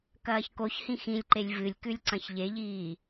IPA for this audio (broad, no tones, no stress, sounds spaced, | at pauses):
k ɐː ç k o ç h ĩ x ĩ lʲ ǃ e lʲ v ɨ lʲ k ʉ lʲ ǀ ɐ̃ ç ʎ e ʎ iː